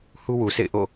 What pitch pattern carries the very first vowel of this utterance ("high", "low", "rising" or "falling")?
high